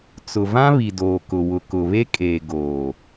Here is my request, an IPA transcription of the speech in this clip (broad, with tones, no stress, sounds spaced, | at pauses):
t͡s ʊ˨ v ã˦ β i˨ d oː˨ k ʊ˨ w ʊ˨ k ʊ˨ β e˦ kʼ eː˨ ɡ oː˨